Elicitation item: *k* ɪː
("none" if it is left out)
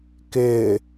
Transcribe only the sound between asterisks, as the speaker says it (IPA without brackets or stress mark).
k